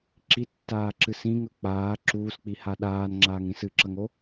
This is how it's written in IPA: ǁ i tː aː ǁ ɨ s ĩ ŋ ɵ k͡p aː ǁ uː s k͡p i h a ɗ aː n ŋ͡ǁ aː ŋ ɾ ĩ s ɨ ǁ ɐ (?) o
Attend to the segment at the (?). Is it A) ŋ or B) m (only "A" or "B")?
A